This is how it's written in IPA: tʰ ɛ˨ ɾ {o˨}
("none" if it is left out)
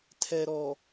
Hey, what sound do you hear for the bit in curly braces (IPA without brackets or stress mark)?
ɔ˨